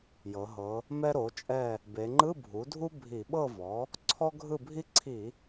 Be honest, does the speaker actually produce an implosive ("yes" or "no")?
yes